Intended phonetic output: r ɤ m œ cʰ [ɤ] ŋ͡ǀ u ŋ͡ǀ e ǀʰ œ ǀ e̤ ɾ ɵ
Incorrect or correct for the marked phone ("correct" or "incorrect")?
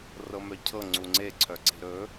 correct